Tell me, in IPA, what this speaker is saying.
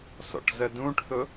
s ɔ̰ ʈ z ə d ũ ʈ θ ʊ

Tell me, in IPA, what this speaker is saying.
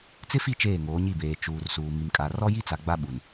t͡s ɪ˦ f i˦˨ t͡ʃ eː˦˨ ŋ oː˨˦ ɲ i˦˨ b eː˨ t͡ʃ uː˨ r s uː˨ m i˨ m kʼ a˨ r ɔ˦ j i˦ t͡s a˨ ɡ͡b a˦ ɓ u˨ n

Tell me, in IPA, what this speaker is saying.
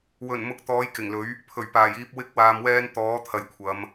w ɵ˨˩ n m ʊ˧ k̚ t̪ ɔː˨˥ j k ɪ˨˩ ŋ l ɵ˨˥ ɥ | pʰ ɵ˨˩ ɥ p aː˨˩ j iː˧ p̚ w ɪ˥ k̚ w aː˧ m w ɛː˥ n t̪ ɔː˨˥ t̪ʰ ɐ˨ j kʷʰ ɐ˨˧ m

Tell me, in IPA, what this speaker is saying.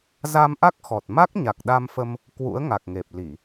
z a˧ m ʔ a˦˥ k̚ x ɔ˨˩ t̚ m a˦˥ k̚ ɲ a˨˩ k̚ ɗ a˧ m f ə˧ m | k w ṵ˧˥ ə̯ ŋ a˨˩ k̚ ŋ e˨˩ p̚ l i˧˩˨

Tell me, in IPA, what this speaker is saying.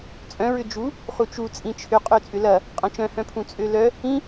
t͡sʼ œ̃ ɹ ʏ d͡ʒ u | χ u t͡ʃ u t͡sʼ ĩ t͡ʃʰ ʏ qʼ ø t͡sʼ ʏ l ɐ | qʼ ɐ̃ t͡ʃ œ̃ h œ̃ pʰ ũ t͡sʼ ø l œ | ĩ

